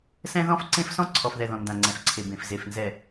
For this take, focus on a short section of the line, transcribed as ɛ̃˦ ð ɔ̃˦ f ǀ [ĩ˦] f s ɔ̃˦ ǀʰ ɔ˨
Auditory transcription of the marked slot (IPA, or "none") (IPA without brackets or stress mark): ẽ˦